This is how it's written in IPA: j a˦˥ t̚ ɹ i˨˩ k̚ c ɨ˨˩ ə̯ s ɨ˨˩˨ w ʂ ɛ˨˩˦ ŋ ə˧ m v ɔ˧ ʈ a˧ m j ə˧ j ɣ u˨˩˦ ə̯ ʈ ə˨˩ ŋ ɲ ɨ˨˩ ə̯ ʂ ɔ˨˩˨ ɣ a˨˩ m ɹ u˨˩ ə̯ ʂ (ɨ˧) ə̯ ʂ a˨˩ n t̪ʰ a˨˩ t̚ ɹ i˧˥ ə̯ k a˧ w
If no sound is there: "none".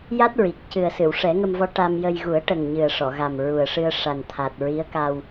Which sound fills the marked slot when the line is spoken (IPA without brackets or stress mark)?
ɨ˧